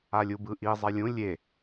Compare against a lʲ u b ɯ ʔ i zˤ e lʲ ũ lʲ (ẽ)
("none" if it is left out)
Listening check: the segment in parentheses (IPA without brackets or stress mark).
e